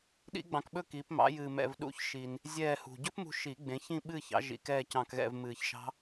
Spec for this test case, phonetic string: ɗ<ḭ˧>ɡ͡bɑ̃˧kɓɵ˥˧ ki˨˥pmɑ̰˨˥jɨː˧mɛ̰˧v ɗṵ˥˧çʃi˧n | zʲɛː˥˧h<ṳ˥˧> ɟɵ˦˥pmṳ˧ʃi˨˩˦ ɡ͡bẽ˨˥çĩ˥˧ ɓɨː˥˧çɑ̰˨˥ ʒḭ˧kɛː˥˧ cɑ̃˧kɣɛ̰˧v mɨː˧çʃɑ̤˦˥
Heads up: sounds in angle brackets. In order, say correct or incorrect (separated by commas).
incorrect, incorrect